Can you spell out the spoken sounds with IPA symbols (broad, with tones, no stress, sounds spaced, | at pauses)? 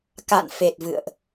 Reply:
k a̰˧˨ n f e˨˩ t̚ v ɨ̰˧˨ ə̯ ʔ